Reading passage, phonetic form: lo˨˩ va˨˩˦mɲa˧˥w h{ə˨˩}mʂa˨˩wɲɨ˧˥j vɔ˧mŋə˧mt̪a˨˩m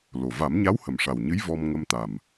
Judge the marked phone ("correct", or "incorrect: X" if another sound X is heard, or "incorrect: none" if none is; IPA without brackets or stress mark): correct